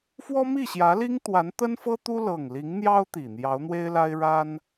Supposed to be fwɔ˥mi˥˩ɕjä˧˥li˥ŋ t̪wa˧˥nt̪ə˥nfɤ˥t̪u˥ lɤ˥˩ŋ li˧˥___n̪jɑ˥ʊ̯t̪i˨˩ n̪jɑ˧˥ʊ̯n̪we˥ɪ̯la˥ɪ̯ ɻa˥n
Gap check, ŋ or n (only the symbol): ŋ